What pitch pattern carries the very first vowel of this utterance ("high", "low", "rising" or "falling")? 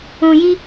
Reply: low